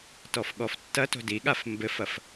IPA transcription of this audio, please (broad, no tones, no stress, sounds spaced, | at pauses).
t ɔ f ɠ ɔ f tː ɐ t o̤ d i ɠ a f m b ɘ f ɐ f